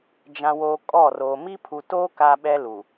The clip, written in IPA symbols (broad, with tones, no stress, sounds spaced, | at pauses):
d͡ʒ ã˨ w oː˨ kʼ ɔ˦˨ r o˨ m i˦ pʰ u˨ t oː˦ k a˦ ɓ ɛ˦ l u˨